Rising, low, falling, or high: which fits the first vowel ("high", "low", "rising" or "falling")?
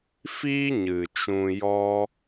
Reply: high